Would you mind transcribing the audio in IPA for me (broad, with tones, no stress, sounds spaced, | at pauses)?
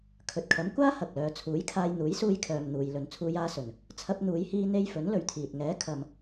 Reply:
kʰ ɵ˨ t̚ kʰ ɐ˨˥ m kʷ aː˥ h ɐ˨ k̚ l œː˨˧ t͡sʰ uː˨˥ j kʰ aː˧ j n̪ uː˨˥ j s uː˧ j kʰ œː˨ m n̪ uː˨ j l ɵ˨ n t͡sʰ uː˧ j aː˧ s ɵ˨˩ n | t͡sʰ ɐ˧ p̚ n̪ uː˨˧ j h iː˧ n̪ e˧ j f ɵ˨˥ n l ɵ˨ ɥ t̪ʰ iː˨ t̚ ŋ ɛː˨˥ kʰ ɐ˨ m